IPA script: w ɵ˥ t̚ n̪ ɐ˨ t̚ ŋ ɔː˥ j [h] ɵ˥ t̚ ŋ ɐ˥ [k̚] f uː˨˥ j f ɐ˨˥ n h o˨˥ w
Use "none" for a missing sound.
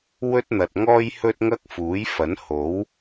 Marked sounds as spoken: h, k̚

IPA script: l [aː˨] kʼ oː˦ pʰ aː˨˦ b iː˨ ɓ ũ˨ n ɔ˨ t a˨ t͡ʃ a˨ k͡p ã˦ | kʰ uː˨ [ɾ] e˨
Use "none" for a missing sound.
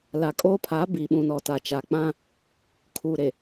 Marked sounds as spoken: a˨, ɾ

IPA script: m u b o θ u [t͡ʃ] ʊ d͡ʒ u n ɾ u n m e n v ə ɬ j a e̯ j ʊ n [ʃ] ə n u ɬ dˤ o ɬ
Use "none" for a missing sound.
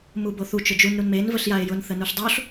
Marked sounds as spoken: t͡ʃ, θ

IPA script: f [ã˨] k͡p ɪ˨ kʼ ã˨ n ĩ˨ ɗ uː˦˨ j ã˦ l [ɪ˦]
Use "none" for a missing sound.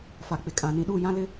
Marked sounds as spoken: a˨, ɪ˦

